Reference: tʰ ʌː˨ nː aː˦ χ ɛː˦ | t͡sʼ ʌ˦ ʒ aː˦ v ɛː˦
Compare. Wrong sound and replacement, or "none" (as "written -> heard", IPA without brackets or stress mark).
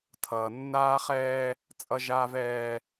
none